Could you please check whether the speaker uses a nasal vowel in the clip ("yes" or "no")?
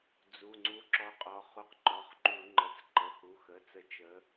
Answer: no